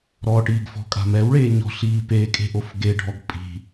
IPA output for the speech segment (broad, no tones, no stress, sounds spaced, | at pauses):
ɾ ɔ ʈ iː ɡ f ɔ̤ kʼ a̤ m ɛ w ɭ eː ɲ ɔ̤ ɬ iː p e kʼ e̤ ʔ o f ɡ e ɖʱ ɔ ɡ pʼ i̤